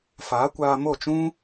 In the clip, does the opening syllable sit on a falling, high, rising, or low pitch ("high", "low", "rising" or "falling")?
rising